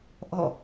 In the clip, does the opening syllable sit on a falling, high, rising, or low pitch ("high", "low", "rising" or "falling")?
falling